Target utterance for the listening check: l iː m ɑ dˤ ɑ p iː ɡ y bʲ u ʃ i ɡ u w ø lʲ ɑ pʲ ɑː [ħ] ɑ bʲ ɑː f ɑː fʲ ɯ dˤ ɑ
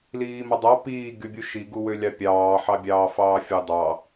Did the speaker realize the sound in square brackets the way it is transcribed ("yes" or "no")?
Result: yes